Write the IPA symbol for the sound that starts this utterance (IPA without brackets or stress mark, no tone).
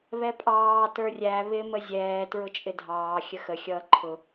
β